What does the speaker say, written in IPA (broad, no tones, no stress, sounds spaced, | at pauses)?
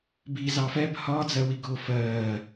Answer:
b i z ɑ f ɛ b h ɒː d͡z ɜ w i ɡ ʊː f ɜː